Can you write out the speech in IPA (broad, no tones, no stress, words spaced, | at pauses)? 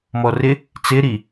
mɔrɪ | t͡sɪɾi